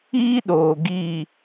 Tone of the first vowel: high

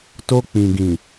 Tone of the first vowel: high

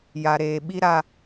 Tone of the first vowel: low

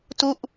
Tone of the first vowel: falling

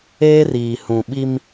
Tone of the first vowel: high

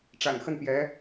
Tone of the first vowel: low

